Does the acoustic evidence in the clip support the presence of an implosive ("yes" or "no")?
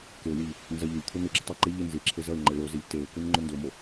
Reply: no